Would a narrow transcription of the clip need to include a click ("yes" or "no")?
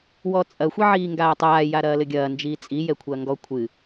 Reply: no